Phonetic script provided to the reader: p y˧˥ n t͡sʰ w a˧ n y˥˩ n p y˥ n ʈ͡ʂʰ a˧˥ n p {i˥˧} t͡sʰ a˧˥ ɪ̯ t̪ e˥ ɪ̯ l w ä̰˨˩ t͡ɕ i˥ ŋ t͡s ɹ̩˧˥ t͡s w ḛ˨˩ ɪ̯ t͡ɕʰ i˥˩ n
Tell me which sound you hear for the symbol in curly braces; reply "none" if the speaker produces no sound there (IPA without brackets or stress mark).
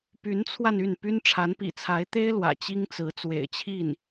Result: ḭ˨˩